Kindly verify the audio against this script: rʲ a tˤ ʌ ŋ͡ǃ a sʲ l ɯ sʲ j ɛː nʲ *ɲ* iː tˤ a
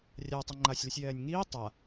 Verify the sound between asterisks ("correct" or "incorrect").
incorrect